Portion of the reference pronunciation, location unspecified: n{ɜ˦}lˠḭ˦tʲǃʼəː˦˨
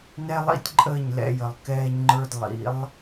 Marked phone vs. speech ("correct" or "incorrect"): incorrect